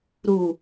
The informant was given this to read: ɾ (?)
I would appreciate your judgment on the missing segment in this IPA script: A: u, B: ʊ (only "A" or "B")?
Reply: A